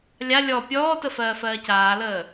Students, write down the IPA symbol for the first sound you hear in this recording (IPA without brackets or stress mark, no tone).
lʲ